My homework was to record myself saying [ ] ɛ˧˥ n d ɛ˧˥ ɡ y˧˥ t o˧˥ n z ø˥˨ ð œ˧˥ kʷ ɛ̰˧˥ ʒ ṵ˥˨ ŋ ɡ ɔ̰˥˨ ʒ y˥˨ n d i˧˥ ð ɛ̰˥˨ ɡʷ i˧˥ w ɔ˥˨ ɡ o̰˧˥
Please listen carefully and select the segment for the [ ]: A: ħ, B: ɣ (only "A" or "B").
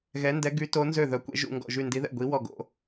B